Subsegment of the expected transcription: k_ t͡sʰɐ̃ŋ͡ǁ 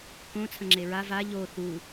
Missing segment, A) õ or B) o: A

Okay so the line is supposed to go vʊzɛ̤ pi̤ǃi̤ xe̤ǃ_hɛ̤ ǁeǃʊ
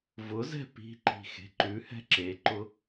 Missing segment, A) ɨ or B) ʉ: B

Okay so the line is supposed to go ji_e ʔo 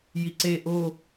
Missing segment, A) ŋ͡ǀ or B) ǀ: B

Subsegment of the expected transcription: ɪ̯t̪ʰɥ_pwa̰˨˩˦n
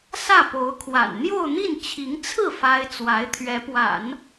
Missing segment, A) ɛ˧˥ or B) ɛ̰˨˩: A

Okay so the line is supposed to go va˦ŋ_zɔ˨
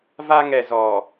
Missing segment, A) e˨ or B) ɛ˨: B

